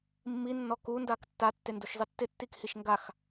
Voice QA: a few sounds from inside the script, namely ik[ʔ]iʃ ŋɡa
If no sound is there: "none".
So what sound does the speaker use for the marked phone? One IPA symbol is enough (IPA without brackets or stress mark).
h